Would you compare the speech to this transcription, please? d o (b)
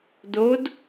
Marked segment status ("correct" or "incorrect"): incorrect